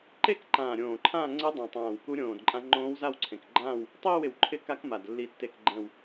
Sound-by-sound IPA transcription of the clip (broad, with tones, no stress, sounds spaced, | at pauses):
ǃ e˥˧ k ǃ ãː˨˩ ɾʲ õː˨˩ ǃʰ ãː˥˧ ŋ͡ǀ ɪ˦˥ dˤ ã˨˩ tˤ ãː˨˩ w k u˦˥ ɾʲ õː˨˩ d ǃʼ ã˦˥ ŋ͡ǃ õː˦˥ w z a˥˧ w ǀʰ ẽ˨˩ k ɡ͡ǃ ãː˥˧ w | tˤ iː˥˧ w ɪ˨˩ w ǃʰ ɪ˦˥ k a˦˥ k m a˨˩ d lː i˨˩ tː e˨˩ k ɡ͡ǃ ɛ̃˨˩ w